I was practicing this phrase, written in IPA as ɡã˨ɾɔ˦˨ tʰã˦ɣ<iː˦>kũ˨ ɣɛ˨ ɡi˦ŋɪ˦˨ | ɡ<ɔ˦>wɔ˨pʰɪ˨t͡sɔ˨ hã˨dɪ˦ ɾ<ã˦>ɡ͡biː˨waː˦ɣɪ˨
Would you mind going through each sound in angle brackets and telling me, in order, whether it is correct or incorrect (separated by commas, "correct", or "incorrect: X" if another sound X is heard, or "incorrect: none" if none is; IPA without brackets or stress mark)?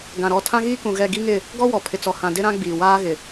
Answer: correct, correct, correct